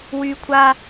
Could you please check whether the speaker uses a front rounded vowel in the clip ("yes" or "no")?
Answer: yes